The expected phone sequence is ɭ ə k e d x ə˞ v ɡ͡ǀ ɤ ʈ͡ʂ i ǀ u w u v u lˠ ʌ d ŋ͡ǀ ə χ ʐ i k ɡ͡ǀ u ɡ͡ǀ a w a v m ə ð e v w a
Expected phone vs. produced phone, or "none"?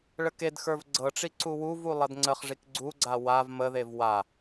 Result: none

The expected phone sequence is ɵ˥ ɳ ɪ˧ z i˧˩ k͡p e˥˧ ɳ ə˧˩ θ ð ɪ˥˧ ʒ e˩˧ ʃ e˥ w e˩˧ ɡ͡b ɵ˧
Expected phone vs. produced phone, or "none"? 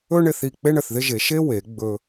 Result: z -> θ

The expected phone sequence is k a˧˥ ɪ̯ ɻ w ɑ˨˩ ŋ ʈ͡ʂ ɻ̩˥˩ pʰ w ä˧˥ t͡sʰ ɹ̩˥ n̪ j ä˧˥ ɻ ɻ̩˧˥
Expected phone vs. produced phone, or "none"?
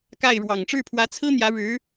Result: a˧˥ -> a˥˩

